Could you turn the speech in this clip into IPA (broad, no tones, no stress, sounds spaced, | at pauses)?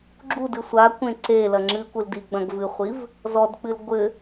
ɡ͡ǁ u d ɨ sʷ a kʷ ẽ ǀ e l ɐ ŋ͡ǁ ɨ kʷ ɨ l d i ɡ͡b ɐ̃ ɡ v ɨ χʷ i v | z ɔ d k͡p ɨ l ɡʷ ɘ